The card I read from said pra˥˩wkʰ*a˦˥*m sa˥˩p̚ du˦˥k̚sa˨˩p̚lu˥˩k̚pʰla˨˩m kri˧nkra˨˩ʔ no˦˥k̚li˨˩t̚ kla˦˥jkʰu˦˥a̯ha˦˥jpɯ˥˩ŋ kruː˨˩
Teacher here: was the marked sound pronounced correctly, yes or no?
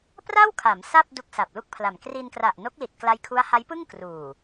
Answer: no